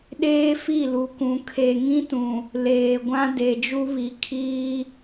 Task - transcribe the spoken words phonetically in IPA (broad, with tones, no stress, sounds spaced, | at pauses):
ɗ eː˦ f i˦˨ l u˨ k ũ˨ kʰ e˨ ŋ ĩ˦ t ũ˨ | l eː˨ ɡʷ ã˦ d e˨ d͡ʒ u˦ β i˨˦ kʰ iː˦